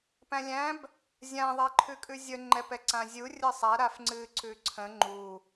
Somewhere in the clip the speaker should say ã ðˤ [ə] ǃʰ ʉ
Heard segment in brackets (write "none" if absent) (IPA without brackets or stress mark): ɛ